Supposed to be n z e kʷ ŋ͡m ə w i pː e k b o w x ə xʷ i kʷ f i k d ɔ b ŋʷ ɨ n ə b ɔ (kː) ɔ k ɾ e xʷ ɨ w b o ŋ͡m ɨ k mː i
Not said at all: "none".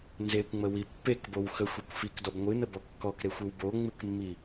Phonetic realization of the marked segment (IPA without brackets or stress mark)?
kː